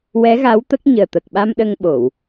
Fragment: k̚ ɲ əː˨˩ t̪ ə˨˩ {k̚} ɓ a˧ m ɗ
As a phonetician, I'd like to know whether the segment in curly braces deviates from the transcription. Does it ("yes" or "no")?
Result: no